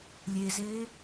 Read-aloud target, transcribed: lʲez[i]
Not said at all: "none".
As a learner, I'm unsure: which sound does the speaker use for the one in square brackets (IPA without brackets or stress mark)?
e